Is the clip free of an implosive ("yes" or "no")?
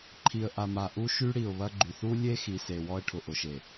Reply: yes